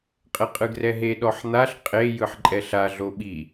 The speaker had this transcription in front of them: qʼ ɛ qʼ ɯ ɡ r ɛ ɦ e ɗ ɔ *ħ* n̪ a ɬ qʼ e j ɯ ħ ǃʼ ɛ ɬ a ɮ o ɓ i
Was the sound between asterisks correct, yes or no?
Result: yes